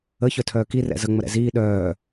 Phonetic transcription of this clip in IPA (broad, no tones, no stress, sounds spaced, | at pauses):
ə ç œ tʰ œː k i r ɛ̰ z ə ŋ͡m ə ɾ ɛ̰ z iː ɗ œː